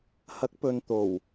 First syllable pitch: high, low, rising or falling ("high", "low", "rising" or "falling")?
rising